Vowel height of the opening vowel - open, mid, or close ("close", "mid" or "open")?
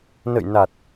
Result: mid